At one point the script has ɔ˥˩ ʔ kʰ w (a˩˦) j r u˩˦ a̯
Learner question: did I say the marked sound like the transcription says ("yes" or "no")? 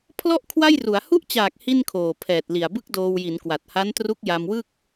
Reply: no